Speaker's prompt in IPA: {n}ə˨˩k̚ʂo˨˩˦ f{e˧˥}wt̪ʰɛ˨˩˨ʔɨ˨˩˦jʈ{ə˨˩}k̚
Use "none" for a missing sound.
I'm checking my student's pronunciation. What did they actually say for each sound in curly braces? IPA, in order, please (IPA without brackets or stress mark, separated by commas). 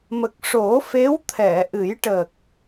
m, e˧˥, ə˨˩